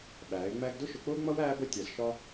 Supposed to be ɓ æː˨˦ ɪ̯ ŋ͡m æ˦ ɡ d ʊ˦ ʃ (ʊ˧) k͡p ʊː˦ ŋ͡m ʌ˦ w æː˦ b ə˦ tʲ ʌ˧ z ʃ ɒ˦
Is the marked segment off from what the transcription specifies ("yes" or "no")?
no